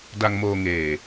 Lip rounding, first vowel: unrounded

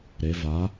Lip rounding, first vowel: unrounded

